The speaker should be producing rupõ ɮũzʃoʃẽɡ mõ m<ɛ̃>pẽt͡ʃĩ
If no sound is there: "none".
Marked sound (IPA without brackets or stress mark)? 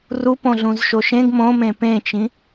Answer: ẽ